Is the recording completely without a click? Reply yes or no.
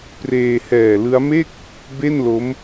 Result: yes